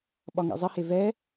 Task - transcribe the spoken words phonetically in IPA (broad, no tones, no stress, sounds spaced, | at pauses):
ɓ ɒ ŋ ḛ zˤ ə h e v ɛ